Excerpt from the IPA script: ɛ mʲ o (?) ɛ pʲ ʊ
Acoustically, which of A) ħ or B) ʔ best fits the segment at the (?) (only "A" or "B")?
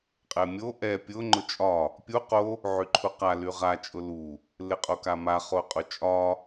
B